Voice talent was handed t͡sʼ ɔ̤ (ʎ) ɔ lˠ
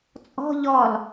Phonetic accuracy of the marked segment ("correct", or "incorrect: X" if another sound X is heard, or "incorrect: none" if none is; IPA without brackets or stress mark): correct